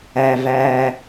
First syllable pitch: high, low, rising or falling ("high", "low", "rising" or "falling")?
low